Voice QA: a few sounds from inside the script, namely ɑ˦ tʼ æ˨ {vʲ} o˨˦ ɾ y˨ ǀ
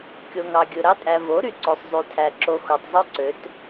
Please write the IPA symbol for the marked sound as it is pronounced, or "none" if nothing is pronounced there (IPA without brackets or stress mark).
v